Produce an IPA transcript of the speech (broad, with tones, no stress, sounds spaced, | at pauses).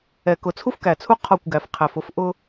ɛ˨ k ʊ˨ t͡sʰ u˦ f k æ˨ t͡sʰ u˦ qʰ ɒ˦˨ kʷ ɡ æ˨ f qʰ æ˨ f ʊ˦ f ʔ ʊ˦